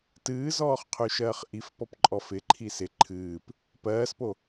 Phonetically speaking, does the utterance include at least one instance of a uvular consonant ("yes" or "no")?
yes